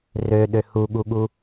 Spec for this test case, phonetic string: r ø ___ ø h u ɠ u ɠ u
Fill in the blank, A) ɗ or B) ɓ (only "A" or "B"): A